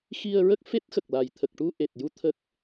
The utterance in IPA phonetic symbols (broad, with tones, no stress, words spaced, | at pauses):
xi˧ə̯ɹə˦˥k̚ fe˦˥t̚xə˨˩k̚la˨˩j t̪ʰə˨˩k̚ʈu˧ʔe˨˩t̚ju˧ t̪ʰə˦˥k̚